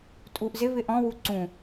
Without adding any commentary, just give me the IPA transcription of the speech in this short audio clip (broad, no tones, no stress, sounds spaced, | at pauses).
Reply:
tʼ u ʔ z ɪ β ɪ ʔ ɔ̃ w u ǀ ũ